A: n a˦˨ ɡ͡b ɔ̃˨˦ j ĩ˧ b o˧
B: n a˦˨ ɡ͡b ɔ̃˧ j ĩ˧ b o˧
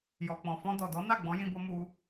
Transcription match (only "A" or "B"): A